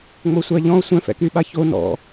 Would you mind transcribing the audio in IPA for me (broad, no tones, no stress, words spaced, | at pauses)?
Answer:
ŋ͡mosʷaʎɔ̃o̯ sʷɛ̃fɛ̰kyɓa ço nɔ̰